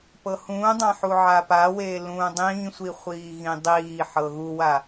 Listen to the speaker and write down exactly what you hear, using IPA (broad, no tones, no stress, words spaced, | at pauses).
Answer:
pɤhũːdˤã ħuʕapaweː lũːdˤĩːsʷi χʷiːɣĩdˤiːħɤ ɣuwa